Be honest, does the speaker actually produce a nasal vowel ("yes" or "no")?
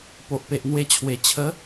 no